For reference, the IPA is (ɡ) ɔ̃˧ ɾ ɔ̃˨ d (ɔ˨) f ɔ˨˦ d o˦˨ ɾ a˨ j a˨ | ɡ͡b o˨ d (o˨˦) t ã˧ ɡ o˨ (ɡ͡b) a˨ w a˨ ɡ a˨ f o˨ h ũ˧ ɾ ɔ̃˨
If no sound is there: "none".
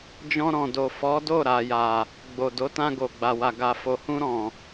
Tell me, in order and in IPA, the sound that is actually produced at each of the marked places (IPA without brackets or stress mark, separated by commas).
d͡ʒ, o˨, o˨˦, ɡ͡b